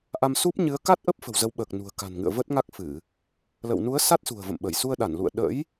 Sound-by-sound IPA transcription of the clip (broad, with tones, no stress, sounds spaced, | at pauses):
ʔ a˧ m s u˦˥ p̚ ɲ ɨ˨˦ ə̯ k a˦˥ t̚ ʔ ə˦˥ p̚ f ə̤˨˩ w z ə˨˦ w ɓ əː˨˩ k̚ n ṳ˨˩ ə̯ k a̤˨˩ n ŋ ɨ̰˧˨ ə̯ v ə˦˥ t̚ ŋ a˦˥ k̚ f ɨ˧˩˨ | l ə̰˧˨ w n u˨˦ ə̯ s a˦˥ t̚ s ṳ˨˩ ə̯ v ə̰˧˨ m ɓ ə˧˩ j s u˧ ə̯ ɗ a˧˩ n l ṵ˧˨ ə̯ ɗ ə̰˧˥ j